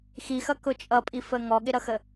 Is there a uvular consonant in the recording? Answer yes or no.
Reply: no